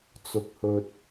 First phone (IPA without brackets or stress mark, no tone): t͡s